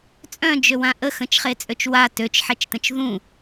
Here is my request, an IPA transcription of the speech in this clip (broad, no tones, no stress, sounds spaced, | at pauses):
t͡sʼ œ̃ d͡ʒ ø w ã ʔ ə x ə̃ t͡ʃ χ e t͡sʼ ø t͡ʃ w a t ø t͡ʃ ħ ɛ t͡ʃ t ə̃ t͡ʃ ð ũ